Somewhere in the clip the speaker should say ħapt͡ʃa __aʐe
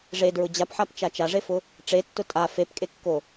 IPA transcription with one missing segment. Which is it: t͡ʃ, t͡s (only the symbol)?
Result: t͡ʃ